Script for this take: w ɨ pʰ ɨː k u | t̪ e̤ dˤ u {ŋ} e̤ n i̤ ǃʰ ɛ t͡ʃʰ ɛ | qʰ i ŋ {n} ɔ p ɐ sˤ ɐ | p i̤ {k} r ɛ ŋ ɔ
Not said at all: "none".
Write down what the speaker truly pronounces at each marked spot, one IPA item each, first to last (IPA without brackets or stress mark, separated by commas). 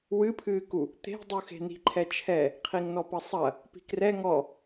x, n, k